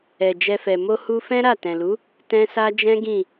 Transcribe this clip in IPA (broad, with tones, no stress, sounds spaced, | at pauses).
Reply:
ɛ˨ d͡ʒ ɛ˧ f ɛ˨ m o˧ h u˧ f ɛ̃˦ ɾ a˦˨ t ɛ̃˨ l u˨˦ | t ɛ̃˦ s a˦ d͡ʒ ɛ̃˦ ɡ ĩ˦˨